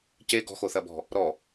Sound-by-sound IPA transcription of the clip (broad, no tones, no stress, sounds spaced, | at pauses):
c e ɡ ɔ̤ x o θ ɐ b ɔ̤ | ɾ ɔ